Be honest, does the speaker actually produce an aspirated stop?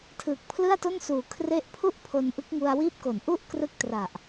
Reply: yes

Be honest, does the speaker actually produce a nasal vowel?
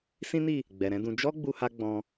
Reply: yes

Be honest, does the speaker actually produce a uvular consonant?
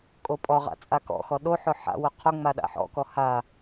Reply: yes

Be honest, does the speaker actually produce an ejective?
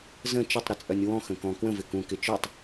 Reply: yes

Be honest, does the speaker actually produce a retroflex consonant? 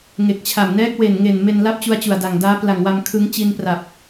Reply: no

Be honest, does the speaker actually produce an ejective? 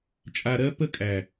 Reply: yes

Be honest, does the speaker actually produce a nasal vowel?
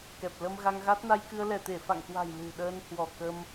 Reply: no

